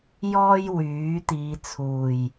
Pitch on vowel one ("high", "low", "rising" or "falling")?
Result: high